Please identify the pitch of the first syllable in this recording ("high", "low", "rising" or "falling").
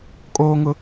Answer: high